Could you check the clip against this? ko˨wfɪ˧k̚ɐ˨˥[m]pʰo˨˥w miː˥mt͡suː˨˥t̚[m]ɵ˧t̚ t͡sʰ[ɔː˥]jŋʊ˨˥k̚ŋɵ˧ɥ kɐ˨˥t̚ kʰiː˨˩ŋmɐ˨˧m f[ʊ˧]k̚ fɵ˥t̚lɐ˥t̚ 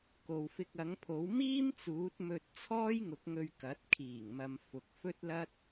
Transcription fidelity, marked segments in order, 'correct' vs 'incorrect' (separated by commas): incorrect, correct, correct, incorrect